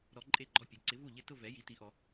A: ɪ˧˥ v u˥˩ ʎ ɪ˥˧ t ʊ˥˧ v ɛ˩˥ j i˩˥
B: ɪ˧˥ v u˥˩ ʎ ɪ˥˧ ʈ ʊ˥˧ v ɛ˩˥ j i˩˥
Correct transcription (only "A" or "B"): A